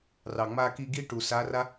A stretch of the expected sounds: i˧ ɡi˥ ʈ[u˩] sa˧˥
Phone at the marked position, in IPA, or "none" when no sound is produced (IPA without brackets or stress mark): u˩